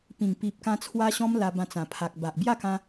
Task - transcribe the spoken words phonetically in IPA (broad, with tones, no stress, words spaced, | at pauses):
pĩ˨˩ŋpi˨p̚kã˧ t͡sʰwa˦ɕɔ̃˦m la˧bã˧t͡sã˨˩pʰa˨k̚ ba˨ʔ bja˥˧kã˧